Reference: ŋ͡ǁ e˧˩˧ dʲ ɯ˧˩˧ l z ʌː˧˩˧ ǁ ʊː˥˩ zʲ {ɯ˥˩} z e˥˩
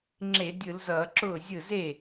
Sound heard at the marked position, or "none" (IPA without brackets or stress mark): ɯ˥˩